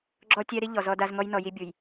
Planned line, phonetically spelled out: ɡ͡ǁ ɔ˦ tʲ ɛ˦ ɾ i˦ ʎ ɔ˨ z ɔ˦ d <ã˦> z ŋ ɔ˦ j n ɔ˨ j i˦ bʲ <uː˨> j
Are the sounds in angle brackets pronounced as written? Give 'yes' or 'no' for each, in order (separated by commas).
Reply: no, no